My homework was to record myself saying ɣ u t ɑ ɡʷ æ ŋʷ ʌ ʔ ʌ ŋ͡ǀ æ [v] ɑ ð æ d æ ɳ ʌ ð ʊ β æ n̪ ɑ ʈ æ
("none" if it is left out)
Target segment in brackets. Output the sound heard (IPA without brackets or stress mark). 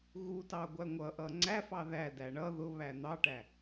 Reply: f